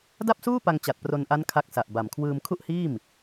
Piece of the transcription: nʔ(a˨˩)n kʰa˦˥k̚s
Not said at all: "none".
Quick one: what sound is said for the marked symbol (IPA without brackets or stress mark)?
a˦˥